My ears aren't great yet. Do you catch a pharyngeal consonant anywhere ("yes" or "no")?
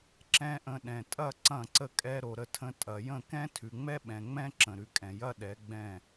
no